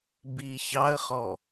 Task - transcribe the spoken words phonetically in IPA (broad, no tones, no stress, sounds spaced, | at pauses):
b i ç ɑ ə̯ χ ɔ